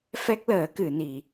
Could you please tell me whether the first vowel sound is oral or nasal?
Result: oral